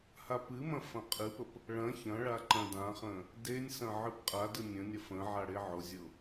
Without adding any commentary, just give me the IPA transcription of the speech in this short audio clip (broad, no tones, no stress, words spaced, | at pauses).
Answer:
hapɨmɐ̃ fɐ̃qʼɨpəp | ɭɐ̃ çɐ̃ɭa ǃɐ̃dãχə̃ | denʲsɐ̃ ʕɨpqʼadɯ nʲə̃nʲɐ fə̃ ʕaɽeʕʊzʲʊ